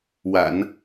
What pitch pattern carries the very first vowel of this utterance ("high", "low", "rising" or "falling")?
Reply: low